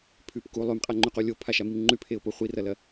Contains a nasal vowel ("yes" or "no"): no